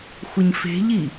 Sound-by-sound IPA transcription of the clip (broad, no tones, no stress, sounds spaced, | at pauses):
xʷ ɪ ɲ f e̤ ʎ i